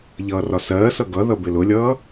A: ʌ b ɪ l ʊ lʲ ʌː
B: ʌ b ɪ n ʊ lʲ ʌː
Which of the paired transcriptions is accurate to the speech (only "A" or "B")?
A